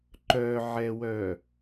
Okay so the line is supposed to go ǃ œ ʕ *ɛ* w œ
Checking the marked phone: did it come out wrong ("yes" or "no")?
no